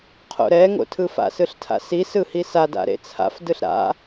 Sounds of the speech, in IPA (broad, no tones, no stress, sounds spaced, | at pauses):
qʰ o̰ ɾ ɛ ŋ o̰ tʰ ɯ f a̰ s ɯ ɬ tʰ a̰ s i s ɯ h i s a d a̰ ɾ ḛ t͡sʰ a̰ f d ɯ ɬ ɾ a̰